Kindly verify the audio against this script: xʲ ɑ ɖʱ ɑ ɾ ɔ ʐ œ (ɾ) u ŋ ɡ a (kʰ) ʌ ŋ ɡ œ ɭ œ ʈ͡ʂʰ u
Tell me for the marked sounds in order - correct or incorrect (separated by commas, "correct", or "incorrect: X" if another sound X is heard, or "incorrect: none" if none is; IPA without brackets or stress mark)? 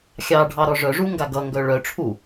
incorrect: ʐ, incorrect: ɡ